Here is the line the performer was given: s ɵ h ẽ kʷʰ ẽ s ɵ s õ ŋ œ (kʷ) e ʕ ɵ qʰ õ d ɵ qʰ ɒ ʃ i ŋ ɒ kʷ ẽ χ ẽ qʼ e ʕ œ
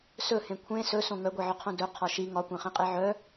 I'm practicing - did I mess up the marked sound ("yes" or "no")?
yes